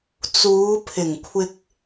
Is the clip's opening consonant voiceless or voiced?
voiceless